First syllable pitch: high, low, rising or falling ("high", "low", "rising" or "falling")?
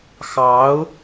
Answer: rising